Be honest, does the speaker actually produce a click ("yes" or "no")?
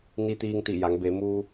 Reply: no